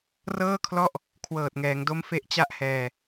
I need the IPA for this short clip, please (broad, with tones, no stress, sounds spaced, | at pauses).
r ɤː˥˩ kʰ l ɔ˥˩ ʔ | kʰ w ɤː˨˩ t̚ ŋ ɛː˩˦ ŋ d o˦˥ m f e˦˥ ʔ t͡ɕ a˥˩ ʔ h ɛː˧